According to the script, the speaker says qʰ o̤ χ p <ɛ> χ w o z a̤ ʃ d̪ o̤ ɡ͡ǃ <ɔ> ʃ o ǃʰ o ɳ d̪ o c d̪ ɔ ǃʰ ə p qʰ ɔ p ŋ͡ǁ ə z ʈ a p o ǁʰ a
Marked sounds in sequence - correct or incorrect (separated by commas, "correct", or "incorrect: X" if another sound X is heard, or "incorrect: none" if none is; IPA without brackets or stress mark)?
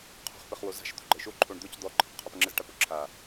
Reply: incorrect: ɘ, incorrect: ɤ